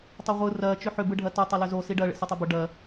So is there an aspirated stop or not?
no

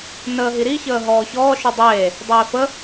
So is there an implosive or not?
no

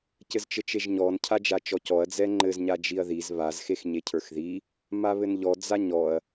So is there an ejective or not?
no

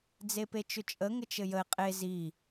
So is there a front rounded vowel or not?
yes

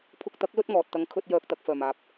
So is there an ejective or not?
no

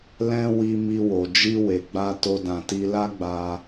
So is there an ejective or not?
no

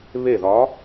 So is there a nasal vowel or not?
no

